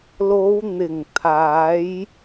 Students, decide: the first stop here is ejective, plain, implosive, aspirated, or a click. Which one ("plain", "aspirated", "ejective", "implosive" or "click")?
aspirated